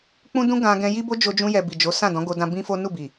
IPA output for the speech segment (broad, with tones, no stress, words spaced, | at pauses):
k͡pũ˦dũ˦ɡã˧ ɡɛ̃˧ji˦ bo˦d͡ʒo˧d͡ʒũ˧jɛ˨ bi˨d͡ʒo˨˦ sã˦˨dɔ̃˨˦ɡo˧dã˧ bĩ˦fo˦ nu˦˨ bi˨